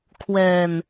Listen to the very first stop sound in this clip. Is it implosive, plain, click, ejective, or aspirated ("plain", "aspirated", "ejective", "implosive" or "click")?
aspirated